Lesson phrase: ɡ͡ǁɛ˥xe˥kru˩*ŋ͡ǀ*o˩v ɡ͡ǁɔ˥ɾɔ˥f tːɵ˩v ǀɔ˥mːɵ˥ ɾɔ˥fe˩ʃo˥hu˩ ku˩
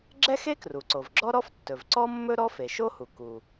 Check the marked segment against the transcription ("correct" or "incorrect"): incorrect